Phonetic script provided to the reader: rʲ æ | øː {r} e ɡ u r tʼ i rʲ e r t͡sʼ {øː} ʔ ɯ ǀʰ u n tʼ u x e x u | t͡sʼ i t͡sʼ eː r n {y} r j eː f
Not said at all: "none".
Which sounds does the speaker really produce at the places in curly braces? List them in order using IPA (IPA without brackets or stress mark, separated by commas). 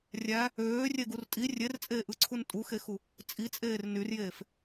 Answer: rʲ, eː, y